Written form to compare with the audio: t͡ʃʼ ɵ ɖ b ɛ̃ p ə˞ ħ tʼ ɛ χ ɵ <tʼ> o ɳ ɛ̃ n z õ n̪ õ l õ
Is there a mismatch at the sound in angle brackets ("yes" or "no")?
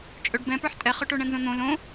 yes